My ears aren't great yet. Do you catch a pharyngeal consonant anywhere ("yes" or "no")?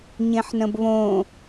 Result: yes